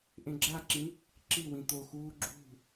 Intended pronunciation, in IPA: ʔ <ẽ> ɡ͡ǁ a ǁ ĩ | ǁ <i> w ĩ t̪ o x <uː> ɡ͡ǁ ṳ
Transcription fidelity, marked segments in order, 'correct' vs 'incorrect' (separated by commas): correct, correct, correct